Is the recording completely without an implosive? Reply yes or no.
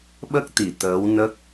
no